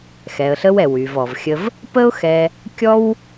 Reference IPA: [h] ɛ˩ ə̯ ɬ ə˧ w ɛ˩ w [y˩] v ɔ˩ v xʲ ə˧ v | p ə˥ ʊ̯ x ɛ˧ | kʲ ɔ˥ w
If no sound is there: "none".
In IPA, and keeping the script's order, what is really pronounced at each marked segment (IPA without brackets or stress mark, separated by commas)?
x, y˩